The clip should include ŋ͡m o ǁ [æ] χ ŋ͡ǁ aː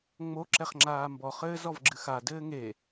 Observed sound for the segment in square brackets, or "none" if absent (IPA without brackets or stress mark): ɛ